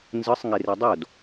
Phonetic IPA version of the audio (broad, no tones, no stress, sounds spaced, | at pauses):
n z ɯ sˤ ŋ e r e dˤ o d